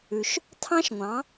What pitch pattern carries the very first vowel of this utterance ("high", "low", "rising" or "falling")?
low